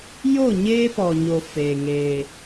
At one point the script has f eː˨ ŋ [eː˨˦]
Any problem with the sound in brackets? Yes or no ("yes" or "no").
yes